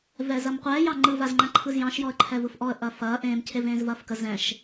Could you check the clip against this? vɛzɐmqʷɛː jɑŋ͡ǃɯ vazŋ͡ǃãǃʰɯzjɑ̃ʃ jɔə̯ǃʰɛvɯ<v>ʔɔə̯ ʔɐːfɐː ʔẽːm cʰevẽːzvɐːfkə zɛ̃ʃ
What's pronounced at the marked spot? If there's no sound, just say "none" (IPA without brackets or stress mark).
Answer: f